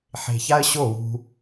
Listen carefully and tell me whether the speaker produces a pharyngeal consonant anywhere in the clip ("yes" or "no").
yes